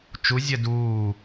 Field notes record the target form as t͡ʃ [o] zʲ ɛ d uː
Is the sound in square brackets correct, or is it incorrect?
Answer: incorrect